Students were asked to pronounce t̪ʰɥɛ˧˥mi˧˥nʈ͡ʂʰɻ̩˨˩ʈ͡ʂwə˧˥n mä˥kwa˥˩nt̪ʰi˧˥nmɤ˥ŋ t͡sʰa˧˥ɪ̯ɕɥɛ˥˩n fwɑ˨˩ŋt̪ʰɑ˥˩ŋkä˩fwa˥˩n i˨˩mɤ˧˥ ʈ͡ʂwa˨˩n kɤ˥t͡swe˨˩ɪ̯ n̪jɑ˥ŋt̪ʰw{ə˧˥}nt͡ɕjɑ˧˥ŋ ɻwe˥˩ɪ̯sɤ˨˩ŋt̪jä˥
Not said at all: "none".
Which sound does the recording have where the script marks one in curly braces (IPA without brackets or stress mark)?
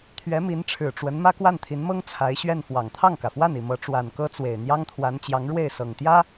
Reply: a˧˥